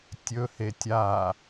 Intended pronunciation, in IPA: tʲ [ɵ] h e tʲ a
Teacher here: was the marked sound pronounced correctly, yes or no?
yes